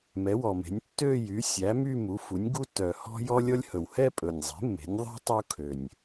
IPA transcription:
m ɛ˩˥ w ɔ˨˩ m e̤˩˥ nʲ tː ø˥˧ j y˩˥ sʲ æ˩˥ m y˥˧ m u˩˥ f u˩˥ nʲ ɡ u˥ tː œ˨˩ h ɔ̤˥ j ɔ˥ lʲ ɔ˥ lʲ h ɵ˨˩ w h ɛ˥˧ pʼ ɵ˨˩ nʲ zˤ e̤˩˥ mː e̤˩˥ nʲ ðˤ e̤˥ tˤ u˥ kʰ ø˨˩ nʲ

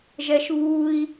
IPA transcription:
ʒ ɛ ʃ β u i̯

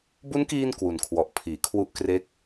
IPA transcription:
b u˦˥ n k iː˧ n k w u˨˩ n kʰ w ɔ˨˩ ʔ pʰ iː˩˦ kʰ w u˦˥ ʔ k r e˦˥ k̚

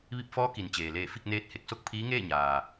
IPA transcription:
ʋ i˧ p̚ f ɔː˧˥ k i˩ n t͡ɕ eː˩ l eː˧˩ f i˥˨ k̚ n eː˧˥ t̚ h e˧˩ k̚ s o˥˨ k̚ pʰ iː˧˥ ŋ eː˥˨ ɲ aː˩

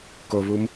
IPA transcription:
k o β u m

